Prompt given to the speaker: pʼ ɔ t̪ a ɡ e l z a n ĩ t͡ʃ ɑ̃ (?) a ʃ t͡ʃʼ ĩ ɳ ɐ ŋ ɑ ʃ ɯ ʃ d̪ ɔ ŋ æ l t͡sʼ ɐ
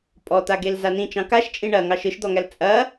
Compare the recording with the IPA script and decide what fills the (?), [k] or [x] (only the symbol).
k